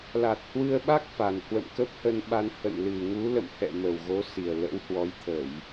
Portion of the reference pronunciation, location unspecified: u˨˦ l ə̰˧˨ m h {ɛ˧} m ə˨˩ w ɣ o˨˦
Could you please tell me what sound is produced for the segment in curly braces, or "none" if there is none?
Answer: ɛ̰˧˨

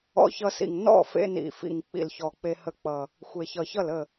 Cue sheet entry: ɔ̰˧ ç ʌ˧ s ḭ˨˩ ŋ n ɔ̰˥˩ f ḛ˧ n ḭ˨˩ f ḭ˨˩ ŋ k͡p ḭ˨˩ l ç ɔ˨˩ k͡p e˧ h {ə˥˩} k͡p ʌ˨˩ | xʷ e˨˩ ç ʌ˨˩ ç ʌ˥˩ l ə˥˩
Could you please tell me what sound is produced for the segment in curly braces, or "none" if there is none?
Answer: ə˧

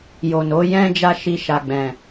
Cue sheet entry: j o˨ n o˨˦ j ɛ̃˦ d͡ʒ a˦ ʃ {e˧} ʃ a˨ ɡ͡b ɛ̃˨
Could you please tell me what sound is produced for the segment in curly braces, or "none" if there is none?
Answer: i˧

